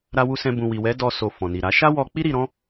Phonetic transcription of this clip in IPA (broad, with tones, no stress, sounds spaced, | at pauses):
ɾ a˦ w u˦ s ɛ̃˦ b ũ˧ w i˨ w ɛ˨˦ d ɔ˧ s o˨ f ɔ̃˨ n i˨ ɾ a˨˦ ʃ a˦ w ɔ˧ k͡p i˦ ɾ i˧ ɾ ɔ̃˦